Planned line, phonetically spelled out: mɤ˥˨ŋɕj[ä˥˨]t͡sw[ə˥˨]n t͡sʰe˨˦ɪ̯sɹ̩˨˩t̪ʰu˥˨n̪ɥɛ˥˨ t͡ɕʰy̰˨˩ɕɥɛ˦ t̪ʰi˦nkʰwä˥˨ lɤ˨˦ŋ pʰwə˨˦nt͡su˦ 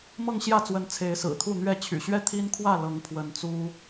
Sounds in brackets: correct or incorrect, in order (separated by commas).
correct, incorrect